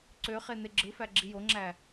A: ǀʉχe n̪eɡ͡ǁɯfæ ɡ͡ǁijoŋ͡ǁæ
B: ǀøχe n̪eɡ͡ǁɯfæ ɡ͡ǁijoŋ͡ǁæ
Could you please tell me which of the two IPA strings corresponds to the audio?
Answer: B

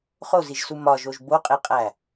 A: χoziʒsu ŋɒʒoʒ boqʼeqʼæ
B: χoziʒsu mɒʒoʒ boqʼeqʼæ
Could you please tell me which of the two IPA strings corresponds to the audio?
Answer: B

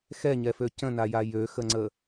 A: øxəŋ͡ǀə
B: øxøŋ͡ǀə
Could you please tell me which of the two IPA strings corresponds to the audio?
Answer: A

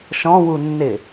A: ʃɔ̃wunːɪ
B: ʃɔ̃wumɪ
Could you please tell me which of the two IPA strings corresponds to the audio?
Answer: A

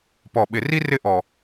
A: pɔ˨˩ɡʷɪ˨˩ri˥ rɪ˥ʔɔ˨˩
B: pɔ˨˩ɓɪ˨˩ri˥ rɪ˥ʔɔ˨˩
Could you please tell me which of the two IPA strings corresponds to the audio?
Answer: B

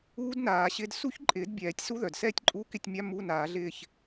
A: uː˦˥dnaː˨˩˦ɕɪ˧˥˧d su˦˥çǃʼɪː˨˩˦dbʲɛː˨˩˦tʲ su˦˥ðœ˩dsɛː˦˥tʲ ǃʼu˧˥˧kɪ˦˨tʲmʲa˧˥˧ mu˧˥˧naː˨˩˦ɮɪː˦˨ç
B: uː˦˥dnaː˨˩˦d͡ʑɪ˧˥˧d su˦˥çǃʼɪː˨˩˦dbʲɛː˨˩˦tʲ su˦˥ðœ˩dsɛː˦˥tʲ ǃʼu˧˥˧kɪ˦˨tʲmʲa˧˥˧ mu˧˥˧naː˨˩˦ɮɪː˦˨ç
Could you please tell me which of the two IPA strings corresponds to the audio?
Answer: A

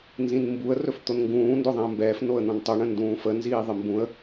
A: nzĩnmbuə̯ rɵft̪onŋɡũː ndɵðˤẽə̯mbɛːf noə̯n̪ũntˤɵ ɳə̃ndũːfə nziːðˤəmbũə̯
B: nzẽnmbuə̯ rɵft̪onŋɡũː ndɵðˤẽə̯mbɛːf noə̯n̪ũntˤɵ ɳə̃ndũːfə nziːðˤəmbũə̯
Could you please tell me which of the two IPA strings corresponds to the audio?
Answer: A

